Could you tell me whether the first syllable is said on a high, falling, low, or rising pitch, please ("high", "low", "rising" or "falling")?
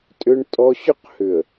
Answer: high